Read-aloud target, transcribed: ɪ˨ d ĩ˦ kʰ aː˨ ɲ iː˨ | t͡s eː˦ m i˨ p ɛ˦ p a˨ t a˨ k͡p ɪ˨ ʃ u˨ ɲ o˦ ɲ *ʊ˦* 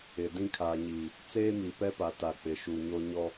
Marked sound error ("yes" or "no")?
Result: yes